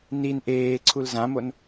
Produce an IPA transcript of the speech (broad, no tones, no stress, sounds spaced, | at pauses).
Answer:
n i n ʔ eː ǀʰ u l z ã m o n